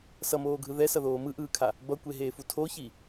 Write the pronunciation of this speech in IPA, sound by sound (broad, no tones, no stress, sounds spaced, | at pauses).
s ʌ m oː ɡʱ ɯ ð ɛ s ʌ ð oː m ɯ ʔ ɯː kʰ a | b ʌ kʷ e ɦ eː f u tʰ o ç i